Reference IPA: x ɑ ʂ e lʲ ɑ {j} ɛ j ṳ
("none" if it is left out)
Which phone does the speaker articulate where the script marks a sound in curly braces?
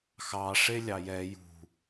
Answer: j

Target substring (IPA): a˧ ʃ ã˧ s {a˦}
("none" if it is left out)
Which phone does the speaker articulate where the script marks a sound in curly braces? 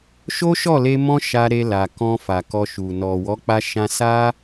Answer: a˦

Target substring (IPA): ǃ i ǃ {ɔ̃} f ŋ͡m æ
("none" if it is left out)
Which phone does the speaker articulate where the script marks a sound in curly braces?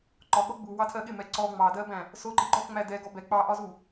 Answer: ɔ̃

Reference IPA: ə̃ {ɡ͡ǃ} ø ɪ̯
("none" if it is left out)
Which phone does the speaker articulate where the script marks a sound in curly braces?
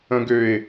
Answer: ɡ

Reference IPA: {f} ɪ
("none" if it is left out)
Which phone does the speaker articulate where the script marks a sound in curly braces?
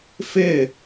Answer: f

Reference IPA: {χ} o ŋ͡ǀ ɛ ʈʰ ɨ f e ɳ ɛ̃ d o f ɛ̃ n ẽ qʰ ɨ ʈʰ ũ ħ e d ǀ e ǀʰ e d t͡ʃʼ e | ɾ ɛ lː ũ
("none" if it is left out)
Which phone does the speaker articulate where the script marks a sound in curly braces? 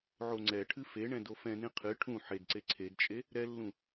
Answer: ʕ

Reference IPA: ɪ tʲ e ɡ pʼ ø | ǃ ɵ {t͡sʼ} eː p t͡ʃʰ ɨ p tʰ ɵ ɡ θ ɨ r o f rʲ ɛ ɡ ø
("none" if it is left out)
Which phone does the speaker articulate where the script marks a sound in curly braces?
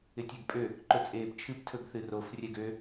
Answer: t͡sʼ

